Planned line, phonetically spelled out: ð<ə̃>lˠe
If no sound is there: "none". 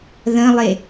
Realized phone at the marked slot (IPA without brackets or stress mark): ə̃